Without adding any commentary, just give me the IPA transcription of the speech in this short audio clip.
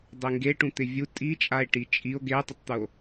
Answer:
dˤeŋɡeʈũ t̪ɪvʲu tʼit͡ʃʼae̯ ʈit͡ʃʼio̯ ɡetˤɪtˤt̪uo̯

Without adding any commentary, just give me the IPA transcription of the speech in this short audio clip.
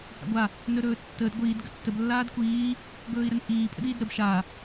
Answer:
ha̰ɡʷa | nɵɾɵːtːəːd ɡʷiːd ɡətːəb lːaːdkʷiː | ɡɵːi̯ɾənpʼiː pʼə̰diːdɾəb ʃa

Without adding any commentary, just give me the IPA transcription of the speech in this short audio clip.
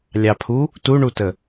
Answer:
lʲɑpʰu | tuɳutə

